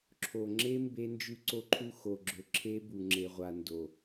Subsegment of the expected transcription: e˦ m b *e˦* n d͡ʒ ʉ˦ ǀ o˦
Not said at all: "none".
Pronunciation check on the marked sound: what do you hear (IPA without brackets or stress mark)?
e˦